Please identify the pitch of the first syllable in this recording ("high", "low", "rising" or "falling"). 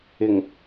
low